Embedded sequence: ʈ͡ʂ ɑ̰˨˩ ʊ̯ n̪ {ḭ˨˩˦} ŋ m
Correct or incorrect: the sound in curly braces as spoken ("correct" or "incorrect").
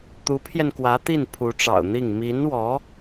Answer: incorrect